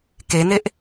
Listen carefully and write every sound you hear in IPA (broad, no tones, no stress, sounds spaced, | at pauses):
k e n e ʔ